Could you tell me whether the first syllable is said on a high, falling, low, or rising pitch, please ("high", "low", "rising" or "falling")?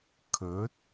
rising